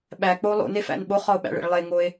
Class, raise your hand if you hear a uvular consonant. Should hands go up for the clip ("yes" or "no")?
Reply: yes